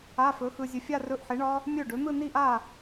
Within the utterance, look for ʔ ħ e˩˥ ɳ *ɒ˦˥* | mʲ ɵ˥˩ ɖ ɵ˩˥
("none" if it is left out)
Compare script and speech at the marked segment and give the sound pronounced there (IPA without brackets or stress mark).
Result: ɒ˦˥